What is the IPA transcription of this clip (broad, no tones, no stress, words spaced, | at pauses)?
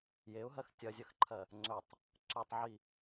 jeʊ̯ɦɜx tʲɐzʲɐxǃʰɜ | ŋ͡ǀɵtˤ | ǀɵtˤʕi